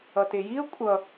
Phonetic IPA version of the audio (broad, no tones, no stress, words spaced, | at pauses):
ʌtejiə̯ kʷʼʌ